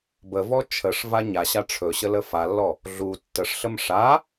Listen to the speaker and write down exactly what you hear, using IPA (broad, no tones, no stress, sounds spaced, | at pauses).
b ə v ɔ t͡ʃʰ ə ʂ v a ɲ a ɕ a ʈ͡ʂʰ ɵ ɕ ə l ə f a lː ɔ | ɮ u tː ə ʂ ɬ ə m ʂ a